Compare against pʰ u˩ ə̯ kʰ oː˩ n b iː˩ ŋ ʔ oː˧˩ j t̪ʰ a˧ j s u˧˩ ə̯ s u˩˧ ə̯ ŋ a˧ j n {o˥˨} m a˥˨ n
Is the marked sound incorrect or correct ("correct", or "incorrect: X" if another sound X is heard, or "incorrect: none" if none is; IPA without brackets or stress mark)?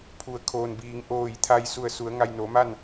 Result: incorrect: o˩˧